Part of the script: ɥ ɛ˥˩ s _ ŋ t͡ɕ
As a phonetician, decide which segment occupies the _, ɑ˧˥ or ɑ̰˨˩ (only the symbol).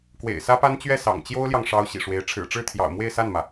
ɑ̰˨˩